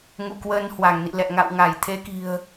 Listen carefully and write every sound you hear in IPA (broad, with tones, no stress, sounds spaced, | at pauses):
ŋ ṵ˧˨ k w əː˧ n h w a˧˩ ŋ n ḭ˧˨ l ɛ̰˧˨ ŋ a̰˧˨ w ŋ a˧˩ j t̪ʰ e˨˦ k i̤˨˩ ə̯